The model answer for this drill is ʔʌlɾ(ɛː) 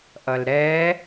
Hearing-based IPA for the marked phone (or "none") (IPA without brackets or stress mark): ɛː